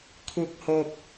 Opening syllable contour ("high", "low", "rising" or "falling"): low